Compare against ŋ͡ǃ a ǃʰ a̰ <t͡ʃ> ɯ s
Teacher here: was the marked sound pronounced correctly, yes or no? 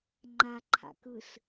no